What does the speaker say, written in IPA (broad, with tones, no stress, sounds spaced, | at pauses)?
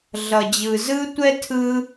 ɮ ʌ˨ d͡ʑ ɯ˨ z ɯ˥ tʷ ɛ˥ tʰ ɯ˥